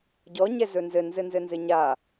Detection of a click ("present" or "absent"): absent